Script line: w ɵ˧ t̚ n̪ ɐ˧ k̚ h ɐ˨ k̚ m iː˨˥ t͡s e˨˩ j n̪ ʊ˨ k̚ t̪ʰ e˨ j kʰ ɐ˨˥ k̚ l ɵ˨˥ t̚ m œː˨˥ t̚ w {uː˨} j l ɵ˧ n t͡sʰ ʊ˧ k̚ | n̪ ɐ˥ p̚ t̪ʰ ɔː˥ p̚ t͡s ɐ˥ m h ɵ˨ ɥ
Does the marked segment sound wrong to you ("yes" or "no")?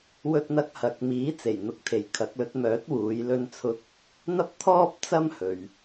yes